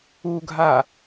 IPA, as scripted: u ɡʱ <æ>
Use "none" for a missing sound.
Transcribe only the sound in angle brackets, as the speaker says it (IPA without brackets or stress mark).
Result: a